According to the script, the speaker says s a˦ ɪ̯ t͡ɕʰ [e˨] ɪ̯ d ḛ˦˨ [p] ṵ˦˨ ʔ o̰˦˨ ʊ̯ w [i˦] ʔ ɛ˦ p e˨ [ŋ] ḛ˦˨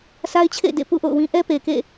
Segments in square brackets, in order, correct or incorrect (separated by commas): incorrect, correct, incorrect, incorrect